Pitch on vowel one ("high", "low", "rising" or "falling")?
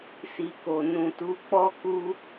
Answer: low